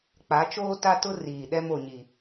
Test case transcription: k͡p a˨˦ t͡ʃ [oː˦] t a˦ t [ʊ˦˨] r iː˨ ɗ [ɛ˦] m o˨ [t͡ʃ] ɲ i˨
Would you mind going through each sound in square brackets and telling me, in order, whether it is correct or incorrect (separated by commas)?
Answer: correct, incorrect, correct, incorrect